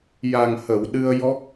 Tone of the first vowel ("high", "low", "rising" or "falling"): low